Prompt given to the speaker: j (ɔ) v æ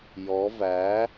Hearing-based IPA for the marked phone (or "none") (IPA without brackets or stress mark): ɔ